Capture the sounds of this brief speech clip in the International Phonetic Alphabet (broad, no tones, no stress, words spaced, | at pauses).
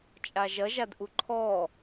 t͡ʃʼaʒɐʒadʔu ǃʰɔ